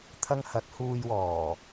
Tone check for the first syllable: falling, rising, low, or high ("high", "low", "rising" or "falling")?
high